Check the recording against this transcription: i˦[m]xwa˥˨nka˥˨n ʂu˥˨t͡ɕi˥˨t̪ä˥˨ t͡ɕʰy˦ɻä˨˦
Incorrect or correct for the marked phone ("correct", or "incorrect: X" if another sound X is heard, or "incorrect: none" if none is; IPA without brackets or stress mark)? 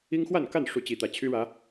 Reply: incorrect: ŋ